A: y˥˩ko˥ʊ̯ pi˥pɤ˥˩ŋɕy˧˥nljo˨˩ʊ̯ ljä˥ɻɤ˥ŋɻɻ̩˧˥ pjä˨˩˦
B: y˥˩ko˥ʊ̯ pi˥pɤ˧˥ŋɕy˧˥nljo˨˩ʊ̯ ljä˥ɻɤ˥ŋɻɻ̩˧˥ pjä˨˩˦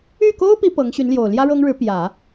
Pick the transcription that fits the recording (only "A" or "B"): B